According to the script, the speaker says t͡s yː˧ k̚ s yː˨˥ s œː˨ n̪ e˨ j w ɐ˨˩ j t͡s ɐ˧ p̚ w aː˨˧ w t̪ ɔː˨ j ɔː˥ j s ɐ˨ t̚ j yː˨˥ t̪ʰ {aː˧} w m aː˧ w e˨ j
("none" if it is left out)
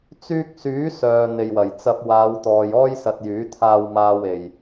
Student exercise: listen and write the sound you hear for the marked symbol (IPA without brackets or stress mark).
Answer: aː˧